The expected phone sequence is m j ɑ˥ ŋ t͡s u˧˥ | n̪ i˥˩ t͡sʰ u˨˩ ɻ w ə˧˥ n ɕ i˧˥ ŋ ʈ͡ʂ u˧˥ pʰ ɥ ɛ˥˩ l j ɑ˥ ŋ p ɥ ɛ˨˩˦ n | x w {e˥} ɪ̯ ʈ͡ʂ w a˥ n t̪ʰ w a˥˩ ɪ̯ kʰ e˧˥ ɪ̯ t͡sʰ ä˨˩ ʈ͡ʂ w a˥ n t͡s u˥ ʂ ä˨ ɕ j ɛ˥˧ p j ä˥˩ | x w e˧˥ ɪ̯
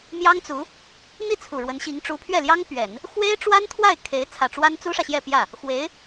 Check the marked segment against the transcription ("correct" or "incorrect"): correct